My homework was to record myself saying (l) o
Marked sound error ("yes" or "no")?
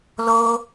no